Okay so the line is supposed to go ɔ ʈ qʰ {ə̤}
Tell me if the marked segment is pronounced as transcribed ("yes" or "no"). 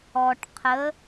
no